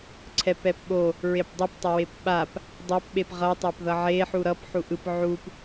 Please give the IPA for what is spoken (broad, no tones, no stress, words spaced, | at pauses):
ǀʰɛpɛpɓo | ɹepdˤʌptˤʌwep ɓap | dˤɛpɓep ʁʌtˤap ðʌʕe ħuɾʌp ħuʔɯp ʕup